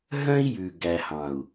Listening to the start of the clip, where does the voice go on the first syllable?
high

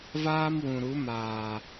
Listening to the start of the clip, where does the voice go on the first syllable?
high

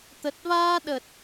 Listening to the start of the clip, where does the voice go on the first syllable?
low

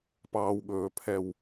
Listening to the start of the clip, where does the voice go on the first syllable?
low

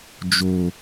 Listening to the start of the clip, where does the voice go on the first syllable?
low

